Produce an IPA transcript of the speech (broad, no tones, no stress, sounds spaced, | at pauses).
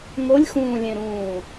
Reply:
ŋ o lʲ x ũː lʲ ẽ ɾ ũː